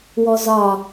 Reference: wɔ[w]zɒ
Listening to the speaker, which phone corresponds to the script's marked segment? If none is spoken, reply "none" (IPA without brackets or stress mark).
none